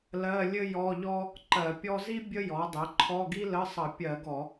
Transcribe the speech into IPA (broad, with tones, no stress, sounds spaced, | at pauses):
l ɜ˧˥˧ lʲ ɘ˥ j ɔ˧˥˧ ʎ ɔ˥ | ǃ ɜ˧˩˧ pʲ ɔ˥ z i˥ bʲ ə˥ j ɔ˩˥ dˤ ɘ˩˥ ǃʰ ɔ˧˥˧ ɡ i˥ l ə˧˥˧ sˤ ʌ˧˩˧ pʲ ɜ˧˩˧ ɡ ɔ˧˩˧